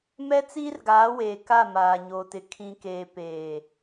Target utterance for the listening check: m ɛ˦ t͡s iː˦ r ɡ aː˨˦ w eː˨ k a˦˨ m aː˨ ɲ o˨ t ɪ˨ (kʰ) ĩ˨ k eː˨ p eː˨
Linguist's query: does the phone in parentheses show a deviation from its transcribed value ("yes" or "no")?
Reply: no